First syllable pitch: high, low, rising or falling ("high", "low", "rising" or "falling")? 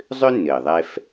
high